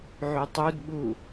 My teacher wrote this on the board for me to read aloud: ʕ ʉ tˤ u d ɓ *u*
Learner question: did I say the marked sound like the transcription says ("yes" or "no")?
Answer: yes